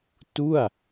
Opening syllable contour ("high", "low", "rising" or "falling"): falling